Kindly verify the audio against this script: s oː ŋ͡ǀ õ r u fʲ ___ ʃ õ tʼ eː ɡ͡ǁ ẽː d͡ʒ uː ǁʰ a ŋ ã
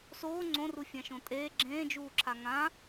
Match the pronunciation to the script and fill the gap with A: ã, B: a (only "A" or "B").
A